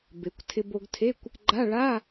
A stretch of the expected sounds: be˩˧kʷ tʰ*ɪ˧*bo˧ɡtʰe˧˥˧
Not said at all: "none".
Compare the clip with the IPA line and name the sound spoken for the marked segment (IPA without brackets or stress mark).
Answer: ɪ˧